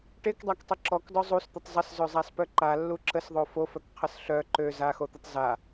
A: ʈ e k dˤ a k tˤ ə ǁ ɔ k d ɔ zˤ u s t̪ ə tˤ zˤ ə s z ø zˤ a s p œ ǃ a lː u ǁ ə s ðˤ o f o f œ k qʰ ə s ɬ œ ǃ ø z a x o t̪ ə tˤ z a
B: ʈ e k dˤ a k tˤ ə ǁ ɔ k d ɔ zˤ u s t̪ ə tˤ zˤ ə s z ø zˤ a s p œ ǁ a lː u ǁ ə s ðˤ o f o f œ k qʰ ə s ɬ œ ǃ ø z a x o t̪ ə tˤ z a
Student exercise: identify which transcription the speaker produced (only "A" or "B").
A